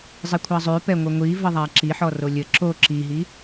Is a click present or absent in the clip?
present